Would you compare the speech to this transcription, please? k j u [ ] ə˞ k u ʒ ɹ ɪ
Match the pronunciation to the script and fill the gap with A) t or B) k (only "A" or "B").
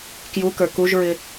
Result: B